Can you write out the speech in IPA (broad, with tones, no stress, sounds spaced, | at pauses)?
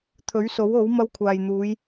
t̪ʰ ɵ˨˥ ɥ s o˨˥ w o˨˥ w m ɐ˧ w kʷʰ aː˨ j n̪ uː˨˧ j